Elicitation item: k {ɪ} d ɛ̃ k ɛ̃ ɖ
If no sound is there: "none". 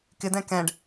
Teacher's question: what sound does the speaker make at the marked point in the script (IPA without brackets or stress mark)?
ɪ